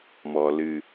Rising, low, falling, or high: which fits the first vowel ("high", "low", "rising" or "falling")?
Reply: low